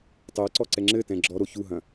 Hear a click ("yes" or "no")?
yes